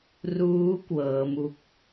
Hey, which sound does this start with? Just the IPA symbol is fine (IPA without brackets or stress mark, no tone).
r